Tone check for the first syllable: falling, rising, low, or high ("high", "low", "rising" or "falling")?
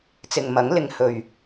low